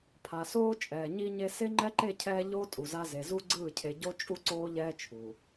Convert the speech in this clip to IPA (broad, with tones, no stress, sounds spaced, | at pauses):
pʰ a˨ s oː˦ t͡ʃʼ ɛː˨ ɲ i˦ ɲ e˦ s e˦ ŋ͡ǃ ɛ˦ ǃ e˦˨ cʰ ɛː˦ ʎ oː˦ tʼ u˨ z a˦ z e˨ z u˦ ɡ͡ǀ ɯː˦˨ cʰ e˨ ɟ o˦ t͡ʃʼ u˦ ǀ oː˦ ʎ ɛː˦ t͡ʃʰ u˨